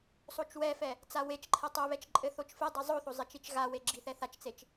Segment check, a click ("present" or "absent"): present